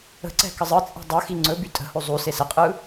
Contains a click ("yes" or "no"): yes